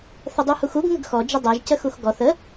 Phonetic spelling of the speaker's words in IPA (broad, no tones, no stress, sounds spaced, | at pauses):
θ ə dˤ u h u x u ɡ ŋ ə ɡ x ɔ d͡ʒ ə dˤ ɛ ʒ c ə x u x ɡ ɔ θ ə